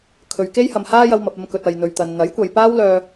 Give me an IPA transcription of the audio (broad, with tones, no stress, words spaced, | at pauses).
kʰɵ˨ɥke˥jhɐ˨m haː˧jɐ˨w mɐ˨p̚ɐ˧mkɵ˨t̚ ɐ˨jn̪ɵ˨ɥt̪ɐ˨n n̪ɐ˨˥jkʷɐ˨jpaː˥wlœː˧